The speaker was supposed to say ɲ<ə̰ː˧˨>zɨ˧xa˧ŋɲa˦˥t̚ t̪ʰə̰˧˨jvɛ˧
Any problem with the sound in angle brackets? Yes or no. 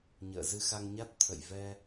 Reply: no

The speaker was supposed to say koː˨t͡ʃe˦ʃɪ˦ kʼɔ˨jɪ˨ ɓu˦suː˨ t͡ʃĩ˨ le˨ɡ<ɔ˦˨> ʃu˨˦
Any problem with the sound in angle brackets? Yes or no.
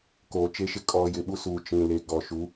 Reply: yes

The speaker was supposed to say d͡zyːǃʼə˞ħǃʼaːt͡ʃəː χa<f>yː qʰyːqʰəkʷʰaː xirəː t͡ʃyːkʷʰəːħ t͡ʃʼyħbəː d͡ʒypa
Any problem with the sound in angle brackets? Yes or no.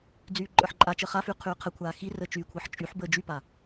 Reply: no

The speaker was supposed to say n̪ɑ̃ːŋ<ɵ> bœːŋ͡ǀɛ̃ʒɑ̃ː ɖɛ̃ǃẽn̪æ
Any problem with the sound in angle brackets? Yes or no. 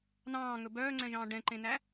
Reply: no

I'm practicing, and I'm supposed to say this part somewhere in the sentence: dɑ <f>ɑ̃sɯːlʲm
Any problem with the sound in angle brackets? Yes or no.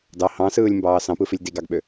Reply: yes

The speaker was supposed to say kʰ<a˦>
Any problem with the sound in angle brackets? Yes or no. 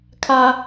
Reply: no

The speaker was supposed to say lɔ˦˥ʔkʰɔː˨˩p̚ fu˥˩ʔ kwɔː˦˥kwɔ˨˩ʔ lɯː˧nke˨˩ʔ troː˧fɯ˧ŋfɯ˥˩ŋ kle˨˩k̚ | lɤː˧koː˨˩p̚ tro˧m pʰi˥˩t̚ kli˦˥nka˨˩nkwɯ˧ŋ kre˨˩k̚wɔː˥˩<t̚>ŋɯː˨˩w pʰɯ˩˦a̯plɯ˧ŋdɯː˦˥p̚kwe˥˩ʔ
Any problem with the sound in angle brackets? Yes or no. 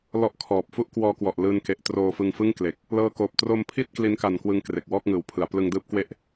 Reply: yes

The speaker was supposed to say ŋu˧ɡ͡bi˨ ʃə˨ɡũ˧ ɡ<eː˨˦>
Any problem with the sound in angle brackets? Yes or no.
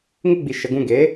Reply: no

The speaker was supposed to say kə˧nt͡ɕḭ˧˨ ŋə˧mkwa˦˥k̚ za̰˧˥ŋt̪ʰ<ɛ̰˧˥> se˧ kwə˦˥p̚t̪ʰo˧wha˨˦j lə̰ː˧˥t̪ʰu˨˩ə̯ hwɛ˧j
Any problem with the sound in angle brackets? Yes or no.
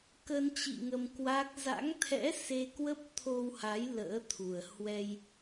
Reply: no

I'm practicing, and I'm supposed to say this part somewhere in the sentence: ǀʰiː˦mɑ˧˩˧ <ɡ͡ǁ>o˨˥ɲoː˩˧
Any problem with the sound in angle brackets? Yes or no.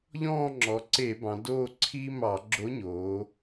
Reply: no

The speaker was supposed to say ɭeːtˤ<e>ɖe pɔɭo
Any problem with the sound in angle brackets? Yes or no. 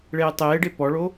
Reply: yes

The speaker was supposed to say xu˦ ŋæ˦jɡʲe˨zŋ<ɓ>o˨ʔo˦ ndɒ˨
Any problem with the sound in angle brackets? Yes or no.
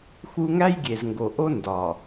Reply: yes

